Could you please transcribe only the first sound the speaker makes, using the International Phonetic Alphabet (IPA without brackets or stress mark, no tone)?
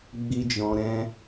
ɡ͡b